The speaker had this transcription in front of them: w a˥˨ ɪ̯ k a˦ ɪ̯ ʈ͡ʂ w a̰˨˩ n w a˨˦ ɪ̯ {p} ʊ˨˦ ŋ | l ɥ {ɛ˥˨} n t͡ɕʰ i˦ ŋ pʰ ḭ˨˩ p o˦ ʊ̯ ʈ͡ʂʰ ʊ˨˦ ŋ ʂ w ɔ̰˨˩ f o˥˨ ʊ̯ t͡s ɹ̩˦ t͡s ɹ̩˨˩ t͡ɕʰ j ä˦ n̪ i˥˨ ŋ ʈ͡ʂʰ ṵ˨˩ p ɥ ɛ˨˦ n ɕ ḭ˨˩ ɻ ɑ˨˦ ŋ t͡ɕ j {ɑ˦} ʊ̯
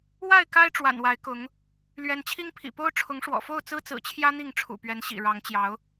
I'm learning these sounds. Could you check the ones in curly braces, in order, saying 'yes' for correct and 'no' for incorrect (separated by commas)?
no, no, no